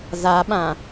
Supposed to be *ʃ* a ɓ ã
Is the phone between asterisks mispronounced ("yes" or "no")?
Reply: yes